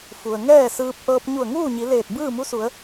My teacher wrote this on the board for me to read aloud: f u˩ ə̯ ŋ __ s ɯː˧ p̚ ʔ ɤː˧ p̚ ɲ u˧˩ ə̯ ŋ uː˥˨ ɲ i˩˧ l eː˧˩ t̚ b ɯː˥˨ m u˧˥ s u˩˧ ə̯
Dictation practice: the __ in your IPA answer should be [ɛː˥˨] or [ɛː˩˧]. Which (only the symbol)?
ɛː˥˨